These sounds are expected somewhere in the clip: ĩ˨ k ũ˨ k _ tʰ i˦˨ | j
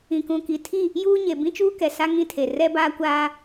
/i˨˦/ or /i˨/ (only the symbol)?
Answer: i˨